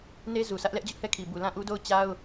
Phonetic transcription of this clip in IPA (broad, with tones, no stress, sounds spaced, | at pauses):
n e˦ z u˨ sʰ ä˦ ʔ l ɛ˦ ʔ d͡ʑ ʊ˦ ʔ h ɛ˦˨ kʰ i˨ b u˨ l ã˦˨ ʔ u˦ d o˦˨ ʊ̯ t͡ɕ a˦ ʊ̯